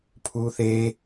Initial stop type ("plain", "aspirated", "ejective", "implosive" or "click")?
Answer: aspirated